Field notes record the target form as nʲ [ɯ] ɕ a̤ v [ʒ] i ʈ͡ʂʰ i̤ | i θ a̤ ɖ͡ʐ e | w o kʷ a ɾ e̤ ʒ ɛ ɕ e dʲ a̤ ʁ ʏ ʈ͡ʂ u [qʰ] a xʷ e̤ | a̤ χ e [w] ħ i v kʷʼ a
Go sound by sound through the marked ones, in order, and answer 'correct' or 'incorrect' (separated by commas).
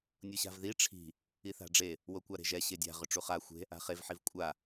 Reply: incorrect, incorrect, incorrect, incorrect